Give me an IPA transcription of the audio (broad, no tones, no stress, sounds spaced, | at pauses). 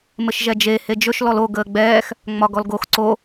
m ɘ ʃ ʒ ɛ d͡ʒ e h e d͡ʒ ɵ ʃ l ɔ l o ɡ əː ɡ͡b ɛː x | ŋ͡m ɒ ɡ ɔ l ɡ o x ǀ o